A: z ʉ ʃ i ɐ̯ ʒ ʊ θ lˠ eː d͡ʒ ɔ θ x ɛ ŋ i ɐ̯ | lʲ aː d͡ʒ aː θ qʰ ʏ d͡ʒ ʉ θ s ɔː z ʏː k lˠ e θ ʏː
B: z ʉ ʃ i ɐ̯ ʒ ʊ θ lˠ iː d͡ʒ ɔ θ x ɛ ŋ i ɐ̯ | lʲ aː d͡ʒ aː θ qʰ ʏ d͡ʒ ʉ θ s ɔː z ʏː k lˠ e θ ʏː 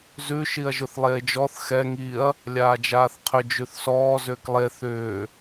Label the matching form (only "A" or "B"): A